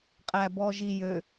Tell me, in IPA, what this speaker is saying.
qʼ æ b ɔ ʒ i j ø

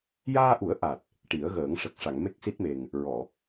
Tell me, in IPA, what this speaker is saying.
j aː˧ ʔ u˨˩˦ ə̯ ʔ a˨˩ t̚ | ʈ i˨˩˦ ə̯ ɣ əː˨˩˦ ŋ ʂ ə˨˩ k̚ ʂ a˨˩˨ ŋ m e˦˥ k̚ s i˦˥ t̚ m e˨˩ ŋ | ɹ ɔ˨˩˨

